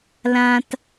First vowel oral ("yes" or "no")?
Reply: no